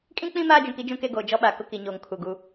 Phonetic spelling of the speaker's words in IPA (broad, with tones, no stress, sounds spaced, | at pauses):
kʼ ĩ˦ k͡p ĩ˦ m aː˦ d͡ʒ ũ˨ k i˦ d͡ʒ ũ˦ k e˦ ɡ oː˨ d͡ʒ ɔ˦ ɓ a˨ k ʊ˦ k i˨ ɲ oː˨ ŋ kʰ u˨ ɡ u˦